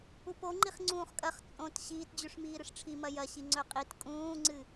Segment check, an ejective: present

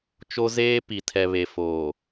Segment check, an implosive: absent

